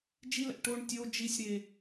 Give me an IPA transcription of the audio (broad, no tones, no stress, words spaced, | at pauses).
d͡ʒilæ̰ ʈoɳ tʲo d͡ʒisʲɾe